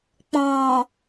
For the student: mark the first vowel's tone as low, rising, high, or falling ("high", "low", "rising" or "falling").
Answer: low